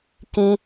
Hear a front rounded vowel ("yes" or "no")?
no